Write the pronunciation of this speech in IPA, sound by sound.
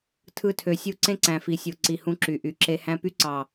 tʰɯ˦tʰø˨sʲu˦ ǀẽ˦ǀæ̃˨fi˨sʲo˨ ǀi˨ hũ˦ǁy˨ ʔy˨ǁe˦ hæ̃˦ py˦ǀɑ˨

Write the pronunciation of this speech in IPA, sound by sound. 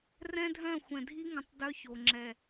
rɛ̃˦dʱœ̃˦˨ xʷɛ̃˨dʱi˦ ŋə̃˨tˤ dœ˦ço˨ ŋ͡ǁɛ˨

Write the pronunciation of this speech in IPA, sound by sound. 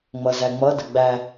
ŋ͡mʌzæŋ͡mʌdə ɡ͡bæ

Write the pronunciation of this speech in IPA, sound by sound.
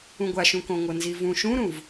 ũɡʷaʃũkõ ŋʷɤnzivũ ʃũɾũv

